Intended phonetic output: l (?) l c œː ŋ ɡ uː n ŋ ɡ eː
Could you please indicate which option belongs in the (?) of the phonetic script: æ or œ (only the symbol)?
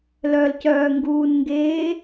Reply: œ